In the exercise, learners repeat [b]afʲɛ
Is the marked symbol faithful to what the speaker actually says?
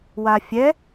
no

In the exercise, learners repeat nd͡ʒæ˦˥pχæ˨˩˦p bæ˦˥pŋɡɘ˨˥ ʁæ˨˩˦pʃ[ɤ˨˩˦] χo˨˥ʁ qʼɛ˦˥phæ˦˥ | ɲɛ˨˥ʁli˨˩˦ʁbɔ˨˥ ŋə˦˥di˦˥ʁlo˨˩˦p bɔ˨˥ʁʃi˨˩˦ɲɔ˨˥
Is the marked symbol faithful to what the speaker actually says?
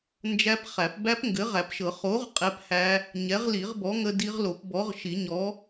yes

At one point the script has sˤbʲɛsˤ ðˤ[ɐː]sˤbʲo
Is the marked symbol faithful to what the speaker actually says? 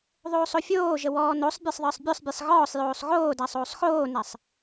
no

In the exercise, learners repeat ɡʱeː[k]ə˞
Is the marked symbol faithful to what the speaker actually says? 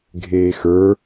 no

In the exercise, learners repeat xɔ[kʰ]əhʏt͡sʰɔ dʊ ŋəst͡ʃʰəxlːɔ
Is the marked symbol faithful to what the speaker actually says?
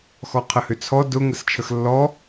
no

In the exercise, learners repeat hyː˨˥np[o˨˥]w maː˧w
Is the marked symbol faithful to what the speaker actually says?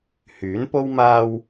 no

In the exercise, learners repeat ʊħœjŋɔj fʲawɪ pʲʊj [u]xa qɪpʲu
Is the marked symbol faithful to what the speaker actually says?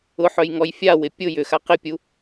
no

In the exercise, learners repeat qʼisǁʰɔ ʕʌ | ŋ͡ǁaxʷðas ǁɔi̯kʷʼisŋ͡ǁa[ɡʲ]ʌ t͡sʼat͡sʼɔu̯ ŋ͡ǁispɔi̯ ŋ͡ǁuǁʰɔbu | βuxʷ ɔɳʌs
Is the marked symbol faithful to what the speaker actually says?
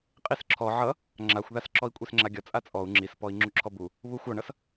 yes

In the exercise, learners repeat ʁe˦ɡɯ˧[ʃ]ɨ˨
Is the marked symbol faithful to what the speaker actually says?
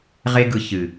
no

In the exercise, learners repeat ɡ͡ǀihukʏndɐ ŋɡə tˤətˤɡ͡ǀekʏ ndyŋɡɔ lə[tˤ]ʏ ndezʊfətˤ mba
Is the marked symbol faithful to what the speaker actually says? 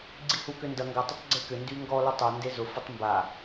yes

